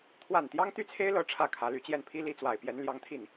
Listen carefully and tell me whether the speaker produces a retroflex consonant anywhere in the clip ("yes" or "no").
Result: yes